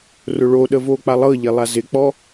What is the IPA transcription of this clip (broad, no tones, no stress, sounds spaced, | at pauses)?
r ʊ ɭ o ɗ ə v oː k͡p a lˠ ɤ ʎ e lˠ a z ɪ k͡p ɔ